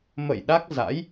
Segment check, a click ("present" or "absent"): absent